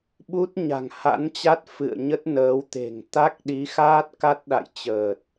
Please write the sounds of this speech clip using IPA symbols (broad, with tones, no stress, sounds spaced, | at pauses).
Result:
ɓ u˦˥ t̚ ɲ a̤˨˩ ŋ h a̰˧˥ n t͡ɕ a˦˥ t̚ f ɨ̰˧˨ ə̯ ɲ ə˦˥ t̚ n əː˨˦ w t̪ e̤˨˩ ŋ t̪ a˦˥ k̚ ɗ i˨˦ x aː˦˥ t̚ k a˦˥ t̚ ɗ a̰˧˨ j t͡ɕ əː˨˩ t̚